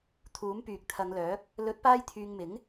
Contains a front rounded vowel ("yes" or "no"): yes